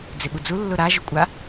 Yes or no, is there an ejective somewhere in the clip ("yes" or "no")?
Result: yes